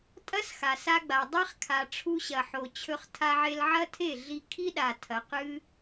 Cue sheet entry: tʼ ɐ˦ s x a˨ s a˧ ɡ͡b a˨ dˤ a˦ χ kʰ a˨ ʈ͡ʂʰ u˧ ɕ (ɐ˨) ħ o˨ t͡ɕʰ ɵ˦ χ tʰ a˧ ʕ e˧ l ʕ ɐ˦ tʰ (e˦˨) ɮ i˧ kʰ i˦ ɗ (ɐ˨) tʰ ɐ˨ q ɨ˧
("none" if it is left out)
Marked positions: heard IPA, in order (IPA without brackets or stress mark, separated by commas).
ɐ˨, e˦˨, a˨